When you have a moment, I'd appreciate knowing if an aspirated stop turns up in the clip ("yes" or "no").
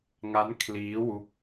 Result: yes